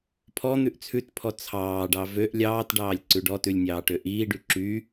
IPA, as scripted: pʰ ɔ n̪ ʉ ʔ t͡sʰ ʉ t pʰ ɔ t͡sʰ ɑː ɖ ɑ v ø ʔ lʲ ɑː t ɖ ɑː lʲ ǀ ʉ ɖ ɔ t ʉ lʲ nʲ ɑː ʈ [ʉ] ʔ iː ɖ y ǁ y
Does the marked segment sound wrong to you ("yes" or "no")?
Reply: yes